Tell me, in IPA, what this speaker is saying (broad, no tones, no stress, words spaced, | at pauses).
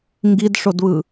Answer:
ŋɡidʂodβɯ